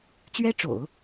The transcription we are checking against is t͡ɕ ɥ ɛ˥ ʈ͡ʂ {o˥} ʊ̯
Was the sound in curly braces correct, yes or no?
no